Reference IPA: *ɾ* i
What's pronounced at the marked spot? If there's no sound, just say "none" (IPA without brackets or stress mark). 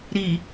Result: ɾ